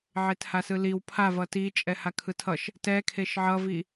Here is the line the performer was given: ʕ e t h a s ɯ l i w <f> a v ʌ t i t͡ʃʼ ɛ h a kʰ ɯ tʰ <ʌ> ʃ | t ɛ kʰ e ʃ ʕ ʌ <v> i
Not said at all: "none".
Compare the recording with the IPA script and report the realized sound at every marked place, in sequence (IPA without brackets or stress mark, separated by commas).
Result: pʰ, ʌ, v